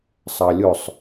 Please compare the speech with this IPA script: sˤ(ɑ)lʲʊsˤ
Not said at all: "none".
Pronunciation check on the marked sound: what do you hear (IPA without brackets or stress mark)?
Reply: ɑ